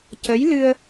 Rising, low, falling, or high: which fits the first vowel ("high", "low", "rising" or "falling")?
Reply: rising